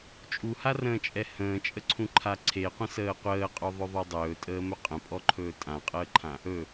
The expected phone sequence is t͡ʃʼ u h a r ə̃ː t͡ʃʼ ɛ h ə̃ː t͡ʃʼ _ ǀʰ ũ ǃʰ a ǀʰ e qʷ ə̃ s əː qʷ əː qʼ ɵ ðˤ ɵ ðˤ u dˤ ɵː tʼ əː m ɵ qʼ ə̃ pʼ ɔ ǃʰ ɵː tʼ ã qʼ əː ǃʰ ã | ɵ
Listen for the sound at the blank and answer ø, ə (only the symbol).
ə